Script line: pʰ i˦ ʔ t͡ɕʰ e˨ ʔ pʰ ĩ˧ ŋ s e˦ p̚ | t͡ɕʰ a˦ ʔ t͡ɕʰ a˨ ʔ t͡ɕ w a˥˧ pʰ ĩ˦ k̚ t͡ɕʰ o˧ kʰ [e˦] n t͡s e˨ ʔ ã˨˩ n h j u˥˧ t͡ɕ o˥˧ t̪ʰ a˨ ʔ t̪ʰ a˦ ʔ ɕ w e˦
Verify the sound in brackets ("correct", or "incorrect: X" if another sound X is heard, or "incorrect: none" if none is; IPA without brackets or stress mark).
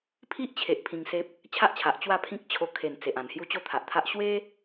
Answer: incorrect: e˨˩